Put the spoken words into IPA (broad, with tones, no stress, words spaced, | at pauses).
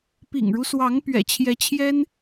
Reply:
pḭ˨˩ŋɻu˦swɑ˧˥ŋ pɥɛ̰˨˩t͡ɕʰjɛ˧˥t͡ɕʰjɛ˥n